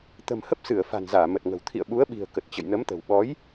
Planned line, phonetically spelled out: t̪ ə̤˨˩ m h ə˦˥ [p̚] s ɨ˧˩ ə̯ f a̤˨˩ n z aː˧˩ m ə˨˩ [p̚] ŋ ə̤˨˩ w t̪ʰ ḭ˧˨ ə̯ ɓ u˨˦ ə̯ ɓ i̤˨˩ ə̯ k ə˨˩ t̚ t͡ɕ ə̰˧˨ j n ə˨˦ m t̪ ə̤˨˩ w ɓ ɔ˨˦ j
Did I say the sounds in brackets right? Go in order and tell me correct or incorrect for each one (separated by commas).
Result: correct, incorrect